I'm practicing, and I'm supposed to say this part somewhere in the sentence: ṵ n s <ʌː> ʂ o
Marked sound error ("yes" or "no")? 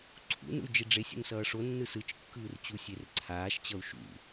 no